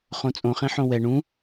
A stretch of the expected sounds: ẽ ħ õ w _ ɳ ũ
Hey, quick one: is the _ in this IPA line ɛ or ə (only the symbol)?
ɛ